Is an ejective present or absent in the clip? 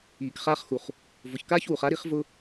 absent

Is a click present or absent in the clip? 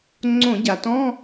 present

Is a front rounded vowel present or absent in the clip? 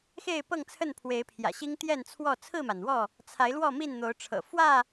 absent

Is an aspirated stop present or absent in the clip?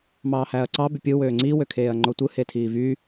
present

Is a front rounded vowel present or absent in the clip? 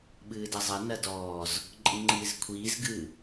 absent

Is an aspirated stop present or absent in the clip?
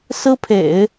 present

